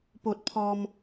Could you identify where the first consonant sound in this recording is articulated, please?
labial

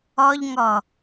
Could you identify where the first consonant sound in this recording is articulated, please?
palatal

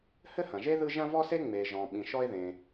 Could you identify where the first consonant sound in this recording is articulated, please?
glottal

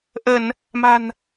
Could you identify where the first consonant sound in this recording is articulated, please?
glottal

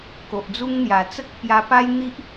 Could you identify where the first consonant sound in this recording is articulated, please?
velar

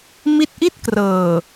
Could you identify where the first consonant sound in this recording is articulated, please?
labial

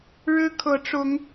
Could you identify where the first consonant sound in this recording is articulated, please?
retroflex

